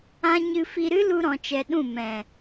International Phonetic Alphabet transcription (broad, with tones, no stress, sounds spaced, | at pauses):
ã˦ ɲ ɨ˧ f i˧ ɾ ɨ˦ l u˧ ɾ ɔ̃˧ t͡ʃ ɛ˧ ɗ ũ˦˨ m ɛ̃˨